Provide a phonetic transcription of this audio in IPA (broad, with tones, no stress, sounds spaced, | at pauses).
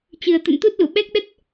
t͡ɕ ɨ˨˩ ə̯ t̪ ə̰˧˨ n t̪ u˦˥ t̚ l ṵ˧˨ ɓ ɛ˦˥ k̚ ɗ ə˦˥ t̚